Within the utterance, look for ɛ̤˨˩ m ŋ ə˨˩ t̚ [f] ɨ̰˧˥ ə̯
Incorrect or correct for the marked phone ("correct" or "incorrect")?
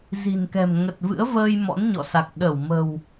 incorrect